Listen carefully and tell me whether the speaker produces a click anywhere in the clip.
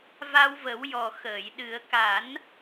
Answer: no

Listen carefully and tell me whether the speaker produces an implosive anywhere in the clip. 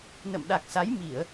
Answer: yes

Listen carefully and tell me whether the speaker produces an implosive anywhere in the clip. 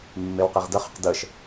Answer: no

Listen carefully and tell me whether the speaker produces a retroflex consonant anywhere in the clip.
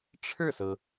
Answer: yes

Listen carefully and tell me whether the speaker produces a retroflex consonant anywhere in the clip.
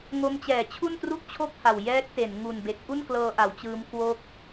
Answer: no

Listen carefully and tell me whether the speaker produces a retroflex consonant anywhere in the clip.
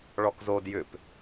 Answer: yes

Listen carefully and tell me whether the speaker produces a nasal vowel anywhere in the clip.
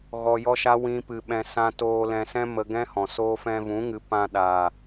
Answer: yes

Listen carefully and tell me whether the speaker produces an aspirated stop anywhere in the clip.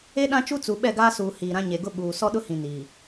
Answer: no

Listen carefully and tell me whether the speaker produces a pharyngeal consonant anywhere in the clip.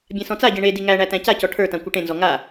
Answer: no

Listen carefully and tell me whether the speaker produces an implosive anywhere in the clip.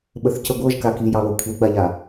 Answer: yes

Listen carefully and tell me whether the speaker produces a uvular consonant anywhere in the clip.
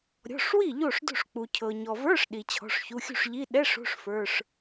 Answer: no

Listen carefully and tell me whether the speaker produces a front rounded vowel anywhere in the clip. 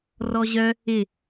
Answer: yes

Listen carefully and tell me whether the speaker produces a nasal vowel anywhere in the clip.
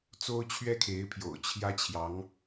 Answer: no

